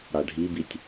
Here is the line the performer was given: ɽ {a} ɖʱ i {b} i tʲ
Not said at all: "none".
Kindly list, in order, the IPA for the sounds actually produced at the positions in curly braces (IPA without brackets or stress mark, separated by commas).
a, b